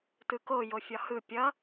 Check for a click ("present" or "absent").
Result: absent